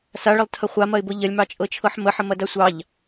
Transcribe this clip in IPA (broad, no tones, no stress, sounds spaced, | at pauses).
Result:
s a ɭ ə lˠ tʰ ɐ χʷ a m ɐ ɪ̯ b ɤ ʎ ɐ lʲ m ɑ t͡ʃʼ ɤ t͡ʃʰ ɤ ħ m ə ħ ə m ɐ d a sʷ ɑ ʎ